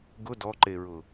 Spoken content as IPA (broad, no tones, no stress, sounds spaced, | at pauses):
ɡ ʊ d ɔ ǃ e ɹ ʊ